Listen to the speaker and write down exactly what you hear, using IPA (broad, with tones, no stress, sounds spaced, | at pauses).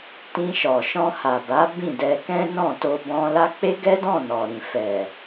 t ĩ˧ ʃ ɔ˨ ʃ ɔ̃˧ h a˨ b a˨˦ b ĩ˦˨ d ɛ˧ k ɛ̃˦ n ɔ̃˦˨ t o˧ b ɔ̃˧ l a˦ k͡p e˦ ɡ ɛ˦ d ɔ̃˦˨ n ɔ˨ ɾ ĩ˨ f ɛ˨